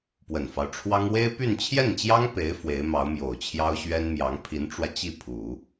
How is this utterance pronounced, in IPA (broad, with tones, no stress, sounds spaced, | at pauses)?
p w ə˨˩ n f ɑ˦ ʊ̯ ʈ͡ʂʰ w ɑ˥ ŋ w e˥ ɪ̯ p y˥˧ n t͡ɕʰ j ɛ˥˩ n t͡ɕ j ɑ˥ ŋ p e˧˥ ɪ̯ f w e˧˥ ɪ̯ m ɑ˧˥ ʊ̯ m j o˨˩ ʊ̯ t͡ɕʰ j ɑ˥ ʊ̯ ɕ ɥ ɛ˥ n m j ɑ˧˥ ŋ pʰ i˧˥ n ʈ͡ʂ w ä˧ t͡ɕ i˥˩ pʰ u˨˩˦